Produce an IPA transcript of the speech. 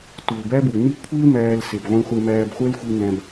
t u˩ l b æ˥ b u˩ n i˥ kʷʰ i˥ l m æː˧ l s e˩ b ʁʷ ĩ˧ χʷ e˧ m æː˧ b χʷ ɛ˥ l xʷ i˧ n æ̃˧ b

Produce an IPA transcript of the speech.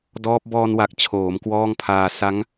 d ɔː˦˥ p̚ b ɔː˧ n w a˨˩ k̚ t͡ɕʰ oː˩˦ m k w ɔː˥˩ ŋ pʰ aː˧ s a˦˥ ŋ

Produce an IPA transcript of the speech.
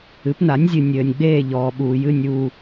ɨ˩˥ p n a˩˥ nʲ zʲ ɨ˨ nʲ ɘː˨ nʲ ɡ͡b eː˦˨ ʎ ɔː˨ ɓ uː˨ j ɨ˦˨ nʲ uː˦˨

